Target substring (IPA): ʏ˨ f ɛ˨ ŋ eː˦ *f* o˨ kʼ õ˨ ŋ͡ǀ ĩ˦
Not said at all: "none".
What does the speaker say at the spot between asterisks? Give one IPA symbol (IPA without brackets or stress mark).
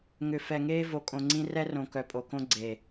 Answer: v